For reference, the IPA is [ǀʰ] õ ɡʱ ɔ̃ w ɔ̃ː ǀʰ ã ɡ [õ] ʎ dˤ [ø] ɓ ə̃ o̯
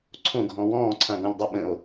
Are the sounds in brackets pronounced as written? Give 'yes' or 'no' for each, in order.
yes, no, yes

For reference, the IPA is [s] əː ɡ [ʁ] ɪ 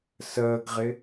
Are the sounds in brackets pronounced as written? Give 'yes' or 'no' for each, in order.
yes, yes

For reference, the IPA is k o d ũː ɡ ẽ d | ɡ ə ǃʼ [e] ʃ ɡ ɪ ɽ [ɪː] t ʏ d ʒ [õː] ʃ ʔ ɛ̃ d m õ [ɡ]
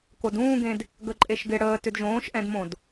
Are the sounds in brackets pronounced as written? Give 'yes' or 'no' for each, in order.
yes, no, yes, no

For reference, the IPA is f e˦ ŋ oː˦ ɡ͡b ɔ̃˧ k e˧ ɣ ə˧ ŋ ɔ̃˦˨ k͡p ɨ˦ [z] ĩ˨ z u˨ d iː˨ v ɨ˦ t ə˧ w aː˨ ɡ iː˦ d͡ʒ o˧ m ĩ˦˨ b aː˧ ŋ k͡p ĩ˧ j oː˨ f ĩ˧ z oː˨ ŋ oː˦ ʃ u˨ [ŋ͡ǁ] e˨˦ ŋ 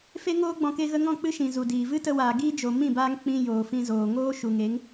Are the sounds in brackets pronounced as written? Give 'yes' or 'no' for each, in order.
no, no

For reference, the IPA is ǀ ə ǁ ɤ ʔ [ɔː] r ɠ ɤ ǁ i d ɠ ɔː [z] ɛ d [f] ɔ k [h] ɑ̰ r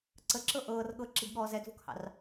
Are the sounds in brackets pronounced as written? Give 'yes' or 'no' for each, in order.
no, yes, no, yes

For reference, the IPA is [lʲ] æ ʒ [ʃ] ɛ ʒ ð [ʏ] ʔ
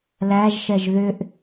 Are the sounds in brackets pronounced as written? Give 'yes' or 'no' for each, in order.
no, yes, yes

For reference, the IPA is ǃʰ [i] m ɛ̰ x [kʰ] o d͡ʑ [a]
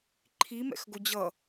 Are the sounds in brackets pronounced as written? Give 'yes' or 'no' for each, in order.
yes, no, no

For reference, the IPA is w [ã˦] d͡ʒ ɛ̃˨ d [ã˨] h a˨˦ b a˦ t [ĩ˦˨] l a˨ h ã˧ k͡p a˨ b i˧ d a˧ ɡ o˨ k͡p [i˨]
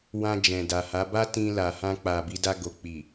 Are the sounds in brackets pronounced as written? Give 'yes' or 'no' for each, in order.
no, no, no, yes

